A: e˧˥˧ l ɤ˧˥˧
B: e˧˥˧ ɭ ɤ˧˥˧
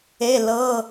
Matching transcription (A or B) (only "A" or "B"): A